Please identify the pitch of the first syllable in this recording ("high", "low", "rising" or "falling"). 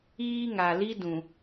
high